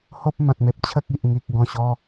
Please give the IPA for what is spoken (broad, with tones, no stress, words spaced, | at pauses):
ho˦p̚ mã˨t̚me˨p̚ t͡ɕʰə˦k̚i˨ʔ ŋi˨k̚ɡɔ̃˨˩ɕɔ˧